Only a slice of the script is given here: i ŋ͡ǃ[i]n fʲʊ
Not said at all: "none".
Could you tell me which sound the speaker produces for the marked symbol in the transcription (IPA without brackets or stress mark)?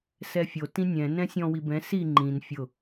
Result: ĩ